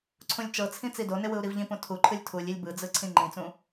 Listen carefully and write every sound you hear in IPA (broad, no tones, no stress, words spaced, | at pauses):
ǀʰũlʲt͡ʃɤt͡sʰĩ t͡sidonɪ wɯu̯ɾivʎĩpũ tʰuǃʰɯlʲ tʰulʲilʲ bɯd͡zɯ ǀʰĩŋ͡ǃĩt͡sũ